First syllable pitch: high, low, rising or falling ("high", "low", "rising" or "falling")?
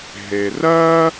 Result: low